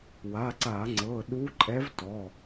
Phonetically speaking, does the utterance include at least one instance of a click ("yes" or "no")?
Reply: yes